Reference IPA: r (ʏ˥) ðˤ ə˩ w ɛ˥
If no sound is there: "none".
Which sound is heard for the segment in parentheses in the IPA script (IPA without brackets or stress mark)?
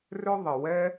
ʏ˥